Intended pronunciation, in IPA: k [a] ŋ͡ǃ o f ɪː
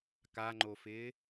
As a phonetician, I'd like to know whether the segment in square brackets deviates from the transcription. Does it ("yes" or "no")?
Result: no